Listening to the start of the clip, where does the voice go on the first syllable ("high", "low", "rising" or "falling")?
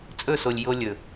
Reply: falling